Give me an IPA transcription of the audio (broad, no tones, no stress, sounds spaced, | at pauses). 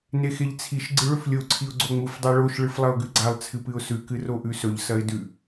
n e x e ʎ t͡sʰ i ʃ ɡ͡ǀ ɨ ɭ ɵ f lʲ o ǀʰ i ʊ̯ ɡ͡ǀ o ŋ͡m u f dˤ a ɭ o ʃ ɭ ɨ f lˠ ɐ ʊ̯ ɡ ʉ ɡ͡ǀ a lˠ t͡sʰ ɨ p ɨ ʊ̯ s ʉ k ɨ r o ʔ ʉ s ɵ ʎ s ɐ ɪ̯ d ʉ